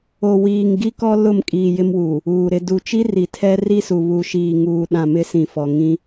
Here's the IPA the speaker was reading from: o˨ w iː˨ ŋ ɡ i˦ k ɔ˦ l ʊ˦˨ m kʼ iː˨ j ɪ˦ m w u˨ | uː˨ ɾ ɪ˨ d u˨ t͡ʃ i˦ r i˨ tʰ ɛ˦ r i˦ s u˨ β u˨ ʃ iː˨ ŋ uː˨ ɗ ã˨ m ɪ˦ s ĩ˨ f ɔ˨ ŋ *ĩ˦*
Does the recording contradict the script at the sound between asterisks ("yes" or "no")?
no